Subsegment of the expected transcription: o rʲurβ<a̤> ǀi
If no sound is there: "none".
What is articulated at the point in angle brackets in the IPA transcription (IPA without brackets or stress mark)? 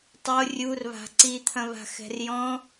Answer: a̤